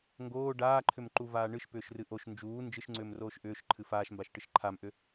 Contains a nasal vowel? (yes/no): no